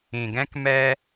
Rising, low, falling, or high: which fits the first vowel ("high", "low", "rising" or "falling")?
low